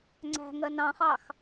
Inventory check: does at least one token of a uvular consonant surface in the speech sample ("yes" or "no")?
yes